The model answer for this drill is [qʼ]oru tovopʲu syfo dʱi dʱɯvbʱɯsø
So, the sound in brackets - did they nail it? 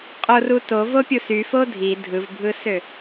yes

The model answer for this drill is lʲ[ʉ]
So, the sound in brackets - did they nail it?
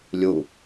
no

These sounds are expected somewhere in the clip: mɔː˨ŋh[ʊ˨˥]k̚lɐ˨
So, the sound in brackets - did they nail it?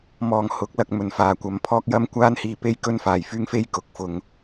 yes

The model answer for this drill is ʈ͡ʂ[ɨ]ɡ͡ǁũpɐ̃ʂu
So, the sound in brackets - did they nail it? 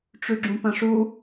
no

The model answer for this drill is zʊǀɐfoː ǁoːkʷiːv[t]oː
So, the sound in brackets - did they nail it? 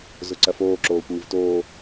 yes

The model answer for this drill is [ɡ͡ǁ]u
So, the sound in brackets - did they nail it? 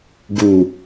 no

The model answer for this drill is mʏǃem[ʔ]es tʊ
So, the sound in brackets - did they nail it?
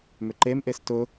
yes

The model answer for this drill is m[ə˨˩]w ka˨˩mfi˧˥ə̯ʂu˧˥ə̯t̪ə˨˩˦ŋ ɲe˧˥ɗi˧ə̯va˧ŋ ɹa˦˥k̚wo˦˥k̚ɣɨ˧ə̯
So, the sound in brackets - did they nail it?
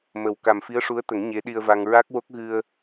yes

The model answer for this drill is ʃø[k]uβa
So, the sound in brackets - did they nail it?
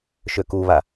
yes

